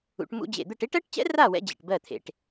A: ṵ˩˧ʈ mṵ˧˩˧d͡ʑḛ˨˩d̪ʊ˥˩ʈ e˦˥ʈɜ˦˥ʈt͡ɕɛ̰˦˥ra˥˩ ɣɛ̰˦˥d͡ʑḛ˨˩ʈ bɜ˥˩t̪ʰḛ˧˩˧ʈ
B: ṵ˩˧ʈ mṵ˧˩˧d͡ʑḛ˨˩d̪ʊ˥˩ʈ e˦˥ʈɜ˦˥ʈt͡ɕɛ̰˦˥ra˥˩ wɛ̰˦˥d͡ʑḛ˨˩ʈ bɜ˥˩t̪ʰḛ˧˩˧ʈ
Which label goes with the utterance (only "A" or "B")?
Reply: B